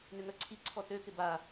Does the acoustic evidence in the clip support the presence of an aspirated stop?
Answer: yes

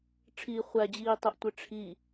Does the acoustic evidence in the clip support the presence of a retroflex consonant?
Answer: yes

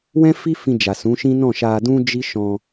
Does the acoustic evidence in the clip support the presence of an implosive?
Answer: no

